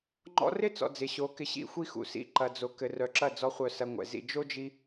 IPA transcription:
ŋ͡ǃ ɔ̰˧ r ɪ˦ t͡s ɔ̰˨ d͡z ɪ˨ ɕ o˨˦ k ɪ˧ ɕ ḭ˧ xʷ i˧ x ṵ˨ s ḭ˧ ǃ ɐ˨ d͡z o˨ k ɘ˨ r œ˨ ǁ ɐ˦˨ d͡z ɔ˧ χʷ œ˧ s ɐ˧ ŋʷ ɛ̰˨ z ḭ˨ d͡ʒ o˦ d͡ʒ i˧

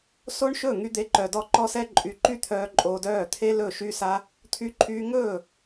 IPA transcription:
s o˦ ɳ ʃ ɵ˦˨ ŋ y˦ d̪ e˦ ǃ œ˧ d ɔ˦ ǃ ɔ˦ s ɛ˦ ǃʼ y˧ ǃ y˦ t̪ʰ œː˧ ǃʼ oː˧ d œː˦˨ t̪ʰ e˦ l ɵ˦˨ ʃ yː˦ s a˦ | t̪ʰ y˧ ǃʰ yː˧ ŋ ɵː˦˨

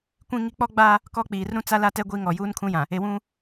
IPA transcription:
kʷ ĩ˦ ŋ i˦ k͡p ɔ˦ ɡ͡b a˦ | k ɔ˦ k͡p iː˨ r ɾ ũ˦ t͡s a˦ l a˦ t ɛ˦ ɡʷ i˦ ŋ ɔ˨ j uː˦ n kʰ ũ˦ j ã˨ | e˨ w ũ˦

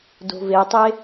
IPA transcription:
d o̤ v e tˤ e

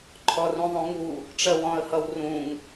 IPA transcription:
ǃʰ ɔ r ũ ðˤ ũ ŋ u | ʈ͡ʂ ɜ w ɔ̃ ə̯ h ʌ w r ũ ŋ

